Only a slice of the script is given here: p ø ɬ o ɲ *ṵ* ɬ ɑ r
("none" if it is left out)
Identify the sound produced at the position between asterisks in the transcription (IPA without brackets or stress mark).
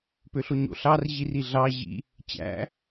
o̰